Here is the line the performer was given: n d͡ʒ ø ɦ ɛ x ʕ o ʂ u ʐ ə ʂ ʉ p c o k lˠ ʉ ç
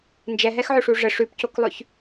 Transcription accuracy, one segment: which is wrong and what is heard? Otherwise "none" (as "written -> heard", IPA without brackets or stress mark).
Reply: ø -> ɛ